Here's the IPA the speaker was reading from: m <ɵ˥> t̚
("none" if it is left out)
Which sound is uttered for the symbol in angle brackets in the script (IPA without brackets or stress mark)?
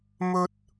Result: ɵ˥